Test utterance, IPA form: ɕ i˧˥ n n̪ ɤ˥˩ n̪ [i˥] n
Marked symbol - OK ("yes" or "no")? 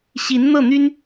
no